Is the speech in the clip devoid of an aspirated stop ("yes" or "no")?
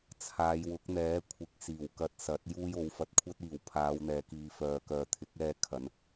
no